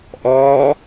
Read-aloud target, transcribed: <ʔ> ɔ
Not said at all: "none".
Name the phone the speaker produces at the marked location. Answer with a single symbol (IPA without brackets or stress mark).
ʔ